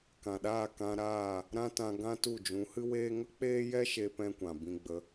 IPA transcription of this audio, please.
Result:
k ã˨ ɗ aː˦˨ k ã˧ ɾ aː˦˨ | ɾ ã˦ t ã˧ ɡ ã˦ t u˦˨ d͡ʒ ũ˨˦ h ɨ˦ w eː˦ ŋ ə˦ k͡p eː˦ j ɛ˦ ʃ e˧ p ɛ̃˦ kʷ ã˨ b ĩ˧ ɡ͡b ə˨˦

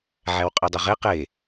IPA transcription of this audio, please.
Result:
ʕ æ w qʼ e dˤ ɵ ʁ e q e

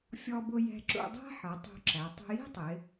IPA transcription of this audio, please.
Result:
fʲ ɔ˧ b ʊ˧ j ɛ̤˧ ǁ ṵ˧ dˤ æ̤˥ ħ ʌ˩˧ tˤ ṳ˧ ǁ æ˩˧ tˤ ṳ˧ j i̤˥ tˤ ɪ˩˧

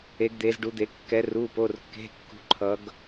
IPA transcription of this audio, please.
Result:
e˩˧ ɡ d̪ e˩˧ z ɖ u˩˧ d̪ e˩˧ kː ɛ˩˧ r u˩˧˩ p o˩˧˩ r kː e̤˩˧˩ kː ṳ˩˧ ǃʰ ʌ˩˧ ɡ

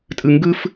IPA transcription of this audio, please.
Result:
tʼ ɯ ŋ ɡ ɯ f

